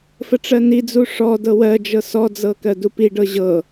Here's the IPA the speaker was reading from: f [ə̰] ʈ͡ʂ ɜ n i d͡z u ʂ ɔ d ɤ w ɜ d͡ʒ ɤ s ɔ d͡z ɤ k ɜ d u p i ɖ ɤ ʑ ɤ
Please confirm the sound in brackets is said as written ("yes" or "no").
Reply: no